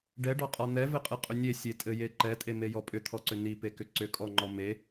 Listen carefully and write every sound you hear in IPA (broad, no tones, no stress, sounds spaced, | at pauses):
ɖ ɛ ɖ ɔ qʼ ɒ n̪ ɛ v ɘ qʼ ɯ qʼ ʏ nʲ e sʲ e tʼ ɘ j e ǃ ɛ tʼ e m e j ɔ pʼ ʏ t̪ʰ ɔ ǀ ʏ n i p e k ʏ ǀ ʏ kʼ ɔ ŋ͡ǃ ɔ m e